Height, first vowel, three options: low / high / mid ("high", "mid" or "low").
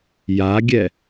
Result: low